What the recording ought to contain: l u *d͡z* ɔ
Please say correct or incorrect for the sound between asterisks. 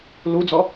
correct